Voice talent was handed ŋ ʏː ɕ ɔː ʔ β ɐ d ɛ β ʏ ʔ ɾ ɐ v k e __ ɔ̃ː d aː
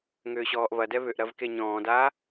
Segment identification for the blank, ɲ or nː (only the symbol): ɲ